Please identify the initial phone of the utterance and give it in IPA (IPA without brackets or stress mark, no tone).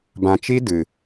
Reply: b